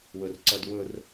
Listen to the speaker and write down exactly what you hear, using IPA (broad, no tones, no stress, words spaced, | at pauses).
wɵrǀɐdwɵr